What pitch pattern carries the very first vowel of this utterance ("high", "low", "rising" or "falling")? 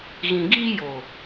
low